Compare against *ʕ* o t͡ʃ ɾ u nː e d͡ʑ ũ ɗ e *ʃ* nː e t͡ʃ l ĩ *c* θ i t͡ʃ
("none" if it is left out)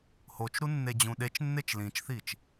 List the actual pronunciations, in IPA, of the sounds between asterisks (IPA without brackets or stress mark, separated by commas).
h, t͡ʃ, t͡ʃ